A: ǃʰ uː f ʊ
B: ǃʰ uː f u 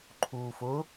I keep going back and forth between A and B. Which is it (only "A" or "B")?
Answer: A